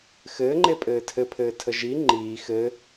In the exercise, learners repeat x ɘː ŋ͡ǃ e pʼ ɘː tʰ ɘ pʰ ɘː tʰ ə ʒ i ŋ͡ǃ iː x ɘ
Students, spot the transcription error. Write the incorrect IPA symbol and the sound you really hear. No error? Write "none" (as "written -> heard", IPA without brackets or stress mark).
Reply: none